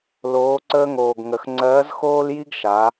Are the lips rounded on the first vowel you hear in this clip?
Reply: yes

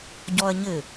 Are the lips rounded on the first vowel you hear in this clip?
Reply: yes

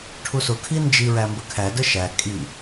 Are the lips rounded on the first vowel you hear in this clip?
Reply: yes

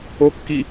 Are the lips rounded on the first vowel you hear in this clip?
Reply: yes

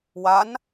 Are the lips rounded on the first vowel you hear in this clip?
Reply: no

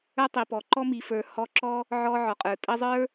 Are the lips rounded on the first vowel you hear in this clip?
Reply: no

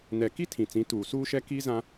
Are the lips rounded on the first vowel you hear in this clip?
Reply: no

